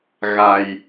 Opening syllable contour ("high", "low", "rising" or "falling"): low